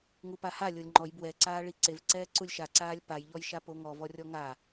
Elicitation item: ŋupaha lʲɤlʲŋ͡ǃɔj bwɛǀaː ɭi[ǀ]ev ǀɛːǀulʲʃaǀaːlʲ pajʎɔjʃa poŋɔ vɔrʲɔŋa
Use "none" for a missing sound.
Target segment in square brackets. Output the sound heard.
ǀ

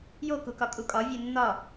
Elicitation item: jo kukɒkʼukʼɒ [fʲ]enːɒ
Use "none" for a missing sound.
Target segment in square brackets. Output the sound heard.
vʲ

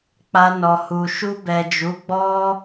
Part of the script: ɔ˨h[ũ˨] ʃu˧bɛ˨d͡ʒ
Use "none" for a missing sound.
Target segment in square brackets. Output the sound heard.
u˨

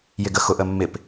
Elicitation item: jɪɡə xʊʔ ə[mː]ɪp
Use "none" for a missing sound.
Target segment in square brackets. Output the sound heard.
mː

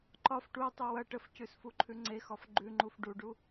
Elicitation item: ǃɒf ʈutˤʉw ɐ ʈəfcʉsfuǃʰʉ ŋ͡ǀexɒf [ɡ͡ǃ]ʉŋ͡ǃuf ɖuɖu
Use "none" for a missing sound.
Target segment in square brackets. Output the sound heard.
ɡ͡ǃ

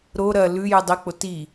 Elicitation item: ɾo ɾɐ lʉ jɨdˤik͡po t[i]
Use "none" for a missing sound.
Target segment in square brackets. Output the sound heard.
i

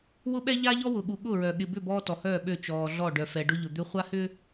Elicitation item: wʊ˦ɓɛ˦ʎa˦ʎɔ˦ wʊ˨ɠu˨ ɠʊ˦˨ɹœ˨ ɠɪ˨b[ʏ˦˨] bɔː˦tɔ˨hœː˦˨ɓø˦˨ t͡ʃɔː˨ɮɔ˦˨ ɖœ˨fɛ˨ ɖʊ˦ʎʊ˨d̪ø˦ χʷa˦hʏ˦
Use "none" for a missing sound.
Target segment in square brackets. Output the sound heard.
ʏ˦˨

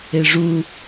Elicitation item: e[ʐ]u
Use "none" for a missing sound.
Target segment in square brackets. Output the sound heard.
ʐ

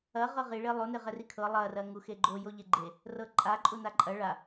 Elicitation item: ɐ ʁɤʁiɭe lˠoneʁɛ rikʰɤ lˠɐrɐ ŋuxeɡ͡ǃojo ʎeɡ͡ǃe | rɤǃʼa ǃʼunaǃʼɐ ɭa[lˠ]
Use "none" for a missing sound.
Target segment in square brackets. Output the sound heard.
none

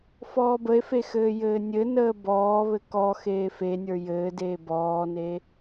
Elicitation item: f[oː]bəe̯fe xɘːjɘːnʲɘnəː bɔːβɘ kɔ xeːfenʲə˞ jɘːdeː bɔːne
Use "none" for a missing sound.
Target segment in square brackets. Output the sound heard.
ɔː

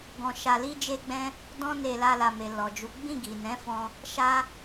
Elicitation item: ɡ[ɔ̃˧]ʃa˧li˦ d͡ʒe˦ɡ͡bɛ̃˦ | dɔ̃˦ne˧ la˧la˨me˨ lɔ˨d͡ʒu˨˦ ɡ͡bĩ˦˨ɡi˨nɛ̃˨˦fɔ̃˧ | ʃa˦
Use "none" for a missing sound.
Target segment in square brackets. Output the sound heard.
ɔ̃˧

